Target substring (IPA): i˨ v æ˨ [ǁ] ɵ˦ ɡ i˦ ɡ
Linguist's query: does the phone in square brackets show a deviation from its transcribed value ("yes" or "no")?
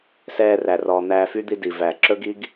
no